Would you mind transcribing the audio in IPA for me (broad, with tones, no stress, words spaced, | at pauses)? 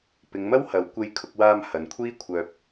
pɪ˨˧ŋmɐ˥whɐ˨˧w kʷe˧jkʰʊ˧k̚waː˧m hɐ˨nkʷʰiː˥kʷʰœː˧p̚